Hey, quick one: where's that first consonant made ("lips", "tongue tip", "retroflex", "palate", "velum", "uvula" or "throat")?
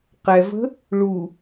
uvula